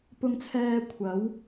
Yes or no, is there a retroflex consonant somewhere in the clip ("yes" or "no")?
no